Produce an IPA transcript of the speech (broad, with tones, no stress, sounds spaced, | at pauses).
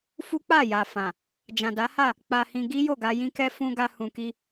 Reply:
f u˦ k͡p a˦˨ j a˨ f ã˨ | d͡ʒ ã˨ d a˨˦ h a˦˨ | k͡p a˧ h ĩ˧ ɡ i˦ j o˦˨ ɡ a˧ j ĩ˧ k ɛ˧ f ũ˧ ɡ a˧ h ũ˨ k i˧